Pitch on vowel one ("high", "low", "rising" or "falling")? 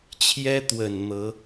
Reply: high